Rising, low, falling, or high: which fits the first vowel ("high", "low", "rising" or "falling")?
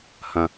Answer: low